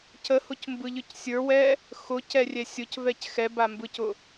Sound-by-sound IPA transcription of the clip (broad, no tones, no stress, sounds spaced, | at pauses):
c ə h ʊ c m b ɯ ʎ ɯ c sʲ ə˞ w ɛ | x ʊ c ɛ rʲ ɛ sʲ ʊ c v ɛ c x ɛ b a m b ɯ c ʊ